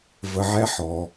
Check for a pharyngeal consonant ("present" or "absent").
present